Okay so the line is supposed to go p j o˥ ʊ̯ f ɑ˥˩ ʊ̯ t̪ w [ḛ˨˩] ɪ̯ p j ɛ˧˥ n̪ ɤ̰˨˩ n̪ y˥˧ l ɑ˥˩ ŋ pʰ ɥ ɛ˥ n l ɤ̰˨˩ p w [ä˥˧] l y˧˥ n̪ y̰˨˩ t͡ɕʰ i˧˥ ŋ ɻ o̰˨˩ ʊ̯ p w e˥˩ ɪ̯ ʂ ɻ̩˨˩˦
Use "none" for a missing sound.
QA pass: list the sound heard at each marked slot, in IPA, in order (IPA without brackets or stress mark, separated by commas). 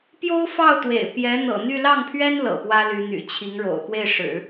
ḛ˨˩, ä˥